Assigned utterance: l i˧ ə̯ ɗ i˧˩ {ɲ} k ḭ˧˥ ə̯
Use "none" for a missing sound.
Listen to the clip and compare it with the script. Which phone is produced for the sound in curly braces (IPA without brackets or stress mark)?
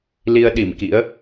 m